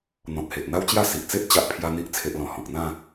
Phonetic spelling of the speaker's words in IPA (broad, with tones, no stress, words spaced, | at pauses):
n̪ɔ̃˨t̚he˨ʔn̪a˦wt͡ɕja˥˧ si˨ʔt͡se˦ʔ t͡ɕa˦ʔpʰja˦n̪i˦ʔ t͡sʰe˦ʔlɔ̃˧ hɔ̃˨k̚n̪ã˥˧